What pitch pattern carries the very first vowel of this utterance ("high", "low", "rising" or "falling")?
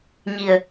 low